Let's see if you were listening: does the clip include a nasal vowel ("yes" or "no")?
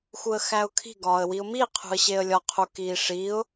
no